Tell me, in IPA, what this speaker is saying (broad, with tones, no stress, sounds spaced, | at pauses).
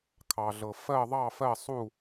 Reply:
kʰ ɑ˩ ɮ ɤ˩ f ɜ˥˨ ðˤ ɑ˥˨ f ɜ˥˨ sˤ u˥˨